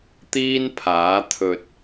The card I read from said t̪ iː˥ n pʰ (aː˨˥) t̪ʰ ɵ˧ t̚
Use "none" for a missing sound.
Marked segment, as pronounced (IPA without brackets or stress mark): aː˨˥